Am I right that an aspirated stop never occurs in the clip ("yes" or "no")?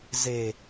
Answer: yes